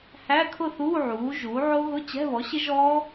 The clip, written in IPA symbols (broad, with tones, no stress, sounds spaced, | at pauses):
h æ˧˥˧ kʰ ʊ˥˨ θ uː˧˥˧ ʕ uː˩˥ ʒ uː˩˥ ʕ o˦˥ ɣ ʊ˧˥˧ t͡ɕ ɛ̤˧˥˧ β ɔ˩˥ ɕ ɪ˦˥ ʒ ɔː˦˥